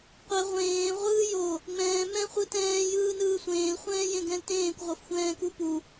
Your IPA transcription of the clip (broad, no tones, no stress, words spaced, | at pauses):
qʷɛ ʁʷẽː ʁʷɯːjo | ŋ͡mɛ̃ː mɛ̃ χʷɯtɛ̃ː jɯːnɯːsʷẽːl χʷɛ̃ːjẽɡɛ̃ltẽːkʷ ʁʷɤfxʷɛ̃ːkupu